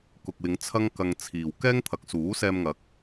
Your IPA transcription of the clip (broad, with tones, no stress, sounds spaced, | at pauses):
k ʊ˨ k̚ w ɪ˨˧ ŋ t͡sʰ ɐ˥ ŋ k ɐ˧ ŋ t͡sʰ iː˨ w k ɛː˥ ŋ t̪ʰ ɐ˨˥ k̚ s uː˨˥ s ɛː˧ m ŋ ɐ˨˥ k̚